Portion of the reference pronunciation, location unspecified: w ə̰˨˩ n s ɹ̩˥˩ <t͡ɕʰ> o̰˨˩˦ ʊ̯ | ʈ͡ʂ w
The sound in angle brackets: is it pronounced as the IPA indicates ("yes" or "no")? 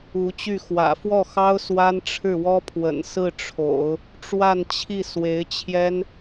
no